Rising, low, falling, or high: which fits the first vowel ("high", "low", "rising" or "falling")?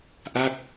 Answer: falling